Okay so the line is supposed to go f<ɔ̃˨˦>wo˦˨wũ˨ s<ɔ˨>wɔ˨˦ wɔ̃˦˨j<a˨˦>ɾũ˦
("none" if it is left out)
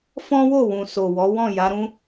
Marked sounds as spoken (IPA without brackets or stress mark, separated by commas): ɔ̃˦, o˨, a˨˦